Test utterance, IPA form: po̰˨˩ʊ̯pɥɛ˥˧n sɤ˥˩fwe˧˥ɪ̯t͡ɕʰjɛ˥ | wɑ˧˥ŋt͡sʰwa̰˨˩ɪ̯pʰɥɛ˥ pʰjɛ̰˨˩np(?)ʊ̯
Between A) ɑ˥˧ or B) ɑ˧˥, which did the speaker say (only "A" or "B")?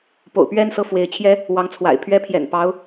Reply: B